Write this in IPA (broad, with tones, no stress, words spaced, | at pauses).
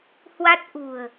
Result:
hwa˦˥t̚ʔṳ˨˩ə̯